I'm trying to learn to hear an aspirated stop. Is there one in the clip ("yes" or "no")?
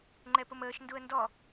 no